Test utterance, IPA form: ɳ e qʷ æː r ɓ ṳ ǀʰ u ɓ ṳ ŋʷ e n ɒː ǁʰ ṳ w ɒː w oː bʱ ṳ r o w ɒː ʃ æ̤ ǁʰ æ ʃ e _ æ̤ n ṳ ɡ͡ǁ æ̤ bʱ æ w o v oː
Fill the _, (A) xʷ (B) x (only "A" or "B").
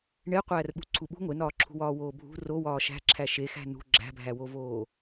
B